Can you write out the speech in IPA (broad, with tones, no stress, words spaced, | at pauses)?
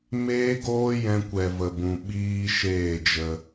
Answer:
meː˦ɡoː˦ jɛ̃˧kʷɛ˨ və˨bũ˨ ɓiː˦ʃeː˦˨ d͡ʒə˧